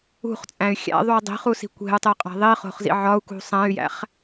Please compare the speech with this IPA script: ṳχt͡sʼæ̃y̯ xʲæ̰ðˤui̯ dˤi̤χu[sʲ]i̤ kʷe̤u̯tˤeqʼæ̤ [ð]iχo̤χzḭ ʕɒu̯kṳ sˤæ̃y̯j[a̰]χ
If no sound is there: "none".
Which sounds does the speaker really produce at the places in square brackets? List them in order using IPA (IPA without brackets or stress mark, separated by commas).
s, ðˤ, æ̰